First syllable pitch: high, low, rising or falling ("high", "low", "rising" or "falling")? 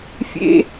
high